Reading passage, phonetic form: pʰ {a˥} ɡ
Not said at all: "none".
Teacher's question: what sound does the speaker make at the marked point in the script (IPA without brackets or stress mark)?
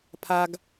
a˥